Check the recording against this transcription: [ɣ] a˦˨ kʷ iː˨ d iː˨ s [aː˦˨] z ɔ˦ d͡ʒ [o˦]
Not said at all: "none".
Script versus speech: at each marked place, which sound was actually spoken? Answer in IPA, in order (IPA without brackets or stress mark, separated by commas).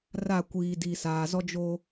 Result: r, aː˨, o˦